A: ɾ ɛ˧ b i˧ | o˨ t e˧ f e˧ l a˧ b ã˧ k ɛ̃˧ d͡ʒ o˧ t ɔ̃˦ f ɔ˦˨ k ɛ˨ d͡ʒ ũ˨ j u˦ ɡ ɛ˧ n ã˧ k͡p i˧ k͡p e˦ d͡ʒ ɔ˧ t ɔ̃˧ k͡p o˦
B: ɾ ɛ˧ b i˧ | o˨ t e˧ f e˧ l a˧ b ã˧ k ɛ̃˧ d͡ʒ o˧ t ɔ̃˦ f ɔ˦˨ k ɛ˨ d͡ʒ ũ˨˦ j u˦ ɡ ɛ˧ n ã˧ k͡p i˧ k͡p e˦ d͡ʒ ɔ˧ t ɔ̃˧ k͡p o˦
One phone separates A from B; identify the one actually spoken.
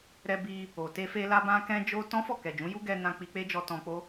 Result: B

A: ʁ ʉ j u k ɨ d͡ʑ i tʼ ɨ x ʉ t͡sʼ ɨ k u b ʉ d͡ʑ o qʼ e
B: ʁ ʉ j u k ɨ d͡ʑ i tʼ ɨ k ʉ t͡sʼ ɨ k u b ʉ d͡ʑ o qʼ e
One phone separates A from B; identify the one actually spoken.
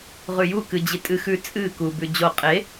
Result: A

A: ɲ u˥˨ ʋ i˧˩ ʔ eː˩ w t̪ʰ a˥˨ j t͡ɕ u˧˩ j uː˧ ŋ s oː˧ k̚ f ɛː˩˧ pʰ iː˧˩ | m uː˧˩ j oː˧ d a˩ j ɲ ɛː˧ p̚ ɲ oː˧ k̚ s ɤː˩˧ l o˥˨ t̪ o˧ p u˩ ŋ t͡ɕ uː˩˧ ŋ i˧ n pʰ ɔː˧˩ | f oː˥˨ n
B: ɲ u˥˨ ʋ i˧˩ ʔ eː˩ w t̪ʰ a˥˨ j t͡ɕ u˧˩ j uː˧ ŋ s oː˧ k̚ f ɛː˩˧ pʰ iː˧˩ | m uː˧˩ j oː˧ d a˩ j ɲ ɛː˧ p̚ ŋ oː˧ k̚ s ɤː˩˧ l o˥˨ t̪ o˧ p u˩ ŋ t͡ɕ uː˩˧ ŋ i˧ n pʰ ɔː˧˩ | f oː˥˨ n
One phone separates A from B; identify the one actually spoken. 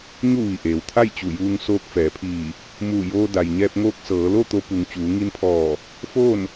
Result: B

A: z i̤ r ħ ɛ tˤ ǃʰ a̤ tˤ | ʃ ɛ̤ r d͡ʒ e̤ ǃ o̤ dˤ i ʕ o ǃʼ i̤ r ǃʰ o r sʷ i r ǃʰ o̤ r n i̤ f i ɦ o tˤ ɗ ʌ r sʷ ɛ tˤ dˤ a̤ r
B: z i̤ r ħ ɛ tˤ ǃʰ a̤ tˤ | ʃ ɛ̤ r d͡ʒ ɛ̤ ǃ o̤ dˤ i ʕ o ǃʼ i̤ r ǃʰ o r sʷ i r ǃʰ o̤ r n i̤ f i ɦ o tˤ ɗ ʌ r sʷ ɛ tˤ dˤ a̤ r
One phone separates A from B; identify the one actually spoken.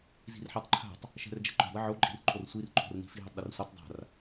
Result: B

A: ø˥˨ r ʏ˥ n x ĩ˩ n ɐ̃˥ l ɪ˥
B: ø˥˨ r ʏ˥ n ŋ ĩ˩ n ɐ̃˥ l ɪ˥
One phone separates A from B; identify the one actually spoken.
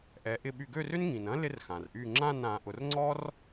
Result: B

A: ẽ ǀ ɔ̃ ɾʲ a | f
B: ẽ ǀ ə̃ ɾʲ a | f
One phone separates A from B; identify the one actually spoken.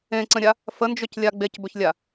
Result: B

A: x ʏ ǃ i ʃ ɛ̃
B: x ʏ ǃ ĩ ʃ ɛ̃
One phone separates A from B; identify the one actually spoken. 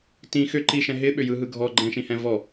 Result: A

